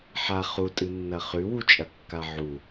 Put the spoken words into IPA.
ħa χutʼɨnːɐ χʉwut͡ʃʼɐkːa ʕu

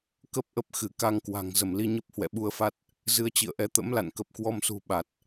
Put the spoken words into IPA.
kə˦˥p̚ʔə˦˥p̚xɨ˧˩ ka˧ŋkwa̤˨˩ŋ zə˧˩mli˧ɲə˦˥p̚ hwɛ̰˧˨ɓu˧ə̯fa˦˥t̚ | zɨ˧ə̯t͡ɕḭ˧˨ə̯ʔɛ˨˦ t̪ə̰˧˥mla̰˧˨n kə˨˩p̚kwɔ˧msṳ˨˩ ɓa˨˩t̚

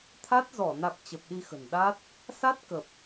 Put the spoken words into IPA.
t̪ʰa˦˥t̚zɔ˧˩ na˨˩k̚ t͡ɕə˨˩p̚ɗi˧xə̤˨˩n ɗa˦˥t̚ | sa˦˥t̚ kə˨˩p̚

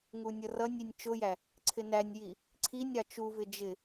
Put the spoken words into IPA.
ŋunʲʌrʌnʲinʲ t͡ʃʊjæ | ǀʰɪnænʲji | ǀʰinʲɾɑ t͡ʃuvɪ d͡ʒɪ

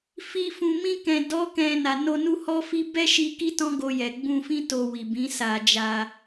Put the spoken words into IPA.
fi˧ fũ˨mĩ˧ kɛ̃˨dɔ˨˦ kɛ̃˧na˨ no˧nu˦hɔ˦ fi˦ bɛ˦ʃi˧ ki˦tɔ̃˦ɡo˧jɛ˨ ɡ͡bũ˧fĩ˦ to˧wi˨bĩ˨˦sa˧ d͡ʒa˧

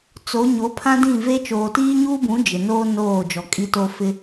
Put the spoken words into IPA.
t͡so˨˦ ɲo˨˦ pʰã˦dĩ˦˨ve˦ t͡ʃoː˨tiː˦ɲuː˦bũ˨˦ d͡ʒɪ˨noː˦ noː˦˨ d͡ʒɔ˨kʼi˦to˦ fɪ˦

